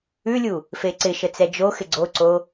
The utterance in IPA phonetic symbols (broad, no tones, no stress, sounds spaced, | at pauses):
ʉ lʲ u | f e ǀ ɪ ʃ ə t͡s ɛ d͡ʒ o x ɪ ɡ͡ǀ o ǀ o